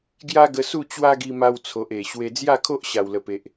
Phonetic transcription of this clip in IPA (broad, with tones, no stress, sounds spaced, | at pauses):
ɡ j a˦ ɡ ə˧ s u˥˧ t͡ɕ w a˦ ɡ i˧ m a˧ w t͡sʰ o˨ ʔ e˨˩ ɕ w e˧ d͡z j a˥˧ kʰ o˦ ʔ ɕ a˨˩ w l ə˨˩ p e˨ ʔ